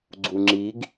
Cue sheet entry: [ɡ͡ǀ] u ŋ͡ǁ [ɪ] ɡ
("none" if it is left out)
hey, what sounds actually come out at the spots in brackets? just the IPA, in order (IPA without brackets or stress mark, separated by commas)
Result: ɡ͡ǀ, i